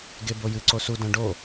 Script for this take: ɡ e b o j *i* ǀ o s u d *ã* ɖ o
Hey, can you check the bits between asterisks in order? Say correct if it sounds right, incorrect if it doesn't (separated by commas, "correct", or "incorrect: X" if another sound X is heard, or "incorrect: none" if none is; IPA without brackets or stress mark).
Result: incorrect: ɨ, correct